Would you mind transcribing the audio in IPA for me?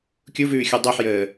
kʲ u v ʉː xʲ ɔ dˤ o ħ j əː

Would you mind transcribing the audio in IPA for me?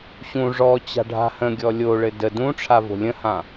ɕ ũ ʐ ɔ t͡ɕ a̤ ɖʱ a̤ h ə̃ ɡʲ ɔ lʲ o ɭ ɘ d ə d ũ ʈ͡ʂʰ a v o̤ lʲ ə̃ h ã

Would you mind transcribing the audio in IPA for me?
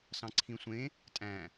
s ɑ̃ ǀʰ ĩ sʷ ẽ | tʼ æ̃

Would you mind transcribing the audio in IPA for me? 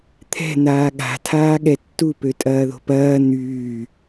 t̪ʰ ɛ̤ n̪ aː ɠ a̤ tʰ aː ɠ ɛ tː u p ø tʼ ɐː ð o̤ p ɐː n̪ yː

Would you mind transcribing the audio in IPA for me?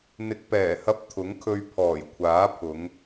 n̪ ɪ˨ k̚ p ɛː˨˩ h ɐ˧ p̚ t̪ʰ ʊ˨˥ ŋ kʰ ɵ˧ ɥ pʰ ɔː˨˩ j kʷʰ aː˨˥ pʰ ʊ˨˧ ŋ

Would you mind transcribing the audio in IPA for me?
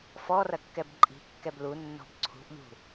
f ɔ r ɐ kː ɛ b ǃʼ i̤ kː ɛ b l u nː ɔ̤ b ǀʰ ṳ ʔ ʎ ṳ

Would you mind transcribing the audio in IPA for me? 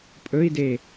pʼ ɵ i̯ d e

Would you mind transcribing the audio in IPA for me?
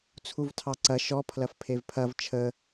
t͡sʰ u v tʰ ɑ ǀ ɐ ʃ ɔ pʰ l ɐ f pʰ e v pʰ ɐ v t͡ʃʰ ə

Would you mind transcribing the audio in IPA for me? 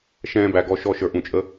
ʃ ɛ̃ː˥ b æ˧ ɡ ɔ˥˧ ʃ ɔ˥˧ ʃ ə˞˧ ʔ ũ˧˩ t͡ʃʼ ə˥

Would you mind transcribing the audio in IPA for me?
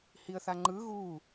h i ə̯ θ a ŋ͡ǃ ɯ ɣ u

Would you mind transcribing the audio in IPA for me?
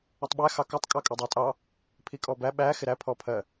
ɪ tˤ ɓ æ x ɑ k ɔ tˤ kʼ ɑ kʼ ʌ dˤ æ tʼ ɑ | pʰ i kʼ ɔ b æ ɓ æ x ɪ ɾ æ pʰ ɔ pʰ ɜ

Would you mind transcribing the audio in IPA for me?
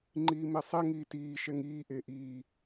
ŋ͡ǃ iː m ɛ sˤ ɛ ŋ iː t iː ʃ ɛ ŋ iː ʔ e ʔ iː

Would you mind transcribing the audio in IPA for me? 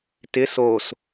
t ɪ s o s

